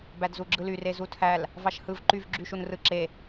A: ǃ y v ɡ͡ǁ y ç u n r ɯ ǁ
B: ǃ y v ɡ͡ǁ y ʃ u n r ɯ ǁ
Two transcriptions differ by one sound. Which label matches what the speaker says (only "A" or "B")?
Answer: B